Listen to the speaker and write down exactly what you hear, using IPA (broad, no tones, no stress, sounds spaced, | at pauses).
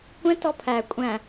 kʷ ɛ̃ t ɔ pʰ æ kʷʼ æ̃